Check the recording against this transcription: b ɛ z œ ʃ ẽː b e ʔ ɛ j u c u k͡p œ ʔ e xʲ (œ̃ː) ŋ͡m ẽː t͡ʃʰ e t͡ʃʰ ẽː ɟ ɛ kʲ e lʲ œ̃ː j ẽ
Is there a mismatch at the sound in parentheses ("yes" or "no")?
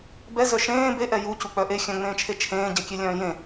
yes